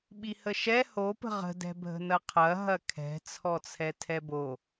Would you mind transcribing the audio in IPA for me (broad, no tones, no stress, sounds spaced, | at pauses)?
ɓ i h ə ʃ ɛ h o p ə̤ ʁ ə̤ d ɛ̤ bʱ ə̤ n ɐ qʰ ɐ ɦ ɐ kʰ ɛ̤ t͡sʰ ɔ t͡sʰ ɛ tʰ ɛ b o